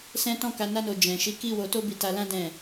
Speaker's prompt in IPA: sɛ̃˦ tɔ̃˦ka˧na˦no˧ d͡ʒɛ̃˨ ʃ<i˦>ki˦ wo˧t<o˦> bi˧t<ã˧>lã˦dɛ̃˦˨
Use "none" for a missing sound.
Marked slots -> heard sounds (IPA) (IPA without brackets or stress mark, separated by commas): i˨˦, o˦, a˧